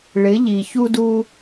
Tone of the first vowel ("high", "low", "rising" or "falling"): rising